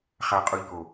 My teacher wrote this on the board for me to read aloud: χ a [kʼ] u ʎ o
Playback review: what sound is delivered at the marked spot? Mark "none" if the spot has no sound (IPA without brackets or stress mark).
qʼ